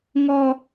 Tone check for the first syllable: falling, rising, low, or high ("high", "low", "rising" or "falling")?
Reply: high